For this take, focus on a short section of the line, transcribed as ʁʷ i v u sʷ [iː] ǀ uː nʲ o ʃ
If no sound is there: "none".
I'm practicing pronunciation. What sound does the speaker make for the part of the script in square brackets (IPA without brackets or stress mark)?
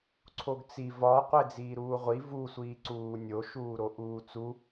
iː